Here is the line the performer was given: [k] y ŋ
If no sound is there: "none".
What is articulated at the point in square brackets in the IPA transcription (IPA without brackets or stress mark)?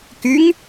k